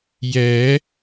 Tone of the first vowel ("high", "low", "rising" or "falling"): rising